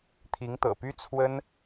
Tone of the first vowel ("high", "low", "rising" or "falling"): rising